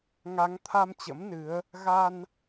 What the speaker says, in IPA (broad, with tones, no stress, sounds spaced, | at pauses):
ŋ a˨˦ ŋ t̪ʰ a˧ m t͡ɕ ə̰˧˥ m n ɨ˨˦ ə̯ | ɣ a˧ n